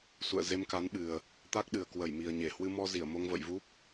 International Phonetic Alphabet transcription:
s ṵ˧˨ ə̯ z e˧ m k a˨˦ n ɓ ɨ˨˩ ə̯ | t̪ a˦˥ k̚ ɗ ɨ˨˩ ə̯ k w ə˧˩ j m i˨˩ ə̯ ɲ e˧˩ h w ɨ˧ m ɔ˧ z i˧˩ ə̯ m o˧ ŋ v ə̰˧˨ j v u˦˥ p̚

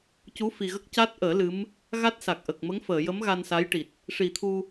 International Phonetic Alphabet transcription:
c u˧˥ f i˨˩ ɣ ə˦˥ k̚ c a˦˥ t̚ ʔ əː˨˩˦ l ɨ˧˥ m | ɣ a˦˥ t̚ s a˨˩ k̚ ʔ ə˨˩ k̚ m ə˧˥ ŋ f əː˨˩˨ j ə˧˥ m ɣ a˧ n s a˧˥ j ʈ i˨˩ t̚ | ʂ i˨˩˦ t̪ʰ u˧

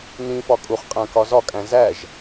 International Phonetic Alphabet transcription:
n ĩ f ɒ kʼ u χ qʼ æ̃ k ɒ z ɒ kʼ æ̃ z æ ʒ

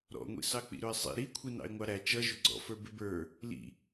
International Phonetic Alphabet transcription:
ɾ ɔ̰ ŋʷ ḭ s ɑ k͡p ḭ ɾ ʊ ɪ̯ sˤ ḭ ɾ i kʷʰ i n ɑ̰ ɪ̯ ŋʷ ɑ ɾ æ t͡ʃ ʌ ʒ ʊ ɡ͡ǀ ɔ̰ f ə˞ b ɪ b ə˞ | l ḭ

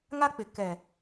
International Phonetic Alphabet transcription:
ŋ a˦ k͡p ɪ˨ k ɛ˨

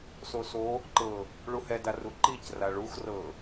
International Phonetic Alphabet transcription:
s o s o | ǃ ɤ | ɭ u h ɛ d a r u ǃ i c r a ɭ u x r ɤ

